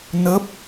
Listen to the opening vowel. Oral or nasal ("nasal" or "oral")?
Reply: oral